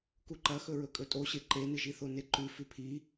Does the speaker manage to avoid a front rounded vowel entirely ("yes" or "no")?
yes